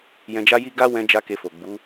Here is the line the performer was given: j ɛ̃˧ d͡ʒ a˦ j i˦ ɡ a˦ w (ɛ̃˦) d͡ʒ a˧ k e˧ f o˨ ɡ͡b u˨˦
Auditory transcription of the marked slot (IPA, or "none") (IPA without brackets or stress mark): ɛ̃˧